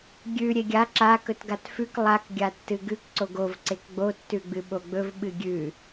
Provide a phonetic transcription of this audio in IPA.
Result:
ɡʲ ʉ ɾʲ e ɡʲ a ǁ a k ɵ t ɡ a t f ʉ k lˠ a k ɡʲ a tː ɨ ɡ ʉ k ǀ o ɡ o v ǀ e k ɡ͡b o tː ʉ ɡ͡b ɨ ɓ o ɡ͡b ɵ v ɓ ɨ ɡʲ ʉ

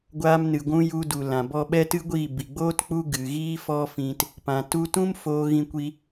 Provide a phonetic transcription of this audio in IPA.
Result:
ɡʷ aː˧ m n ɨ˨ ɡʷ ũ˧ j u˧ d u˨ l ã˨ b ɔ˧ ɓ ɛ˦ t ɨ˦ ɡʷ iː˦˨ b i˨ ɡ͡b oː˦ t k͡p u˦ ɡ ɨ˨ ɣ iː˦ f ɔ˦ f ĩ˧ t | p ã˨ t u˧ t ũ˦ m f oː˧ ɣ ĩ˧ kʷ i˧

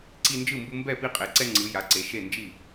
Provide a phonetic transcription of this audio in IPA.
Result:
ǀ i˦ n d͡ʒ ɯ˥˨ m b u˦ m b ɛ˥˨ p i˦ qʼ e˨˦ ǀ ɛ˦ ŋ͡ǀ ɯ˨˦ j a˨˦ ǀ e˨˦ ʃ e˥˨ n d͡ʒ i˥˨

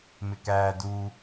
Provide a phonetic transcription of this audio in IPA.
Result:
m ɪ k æː d u

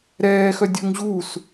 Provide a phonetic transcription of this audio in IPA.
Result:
ɾ ɛː x œ dʲ ɵ ŋ ʑ u s

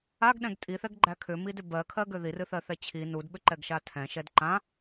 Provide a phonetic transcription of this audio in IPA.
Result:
a ɡ ɗ ɛ̃ ɡ tʼ i θ ɛ ɡ ɡ͡ǃ æ kʰ ʏ m i d ʏ b ɜ kʰ ɜ ɡ ʏ ð i r ɨ θ ɜ θ ɛ t͡ɕʰ i n u d ɓ ʏ ǃ ɛ ɡ ʃ a tʰ ɛ̃ ʃ ɛ d ǃ ã

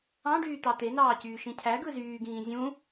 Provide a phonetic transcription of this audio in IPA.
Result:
ɑ̃ ɖ yː t̪ ɑ t̪ e n ɑː c yː ʃ ĩ cʰ æ ɡ ɯ z yː ɡ ĩː zʲ ũ

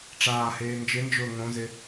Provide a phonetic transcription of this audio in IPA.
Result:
ʈ͡ʂ aː h eː n d͡ʒ ɪ n d͡ʒ ʊː ŋ õ z ɪ

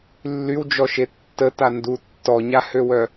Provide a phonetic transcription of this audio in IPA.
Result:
lː y w d͡ʒ ɔ ʃ e tː ə t a n d u tː ɔ ɲ a h ø w œ

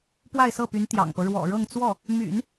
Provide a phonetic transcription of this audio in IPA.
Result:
p w a˥˧ ɪ̯ s ɤ˥˩ p y˧˥ n t̪ j ɑ̰˨˩ ŋ p ɤ˦ ɻ w ɔ̰˨˩ ɻ ɤ˥˧ ŋ t͡s w ɔ˥˩ | m y̰˨˩˦ n

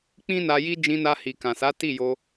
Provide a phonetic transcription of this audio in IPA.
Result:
k͡p ĩ˦ n a˧ j i˦ d͡ʒ ĩ˧ n a˧ h i˨ k ã˨ s a˨˦ t i˦˨ j o˧

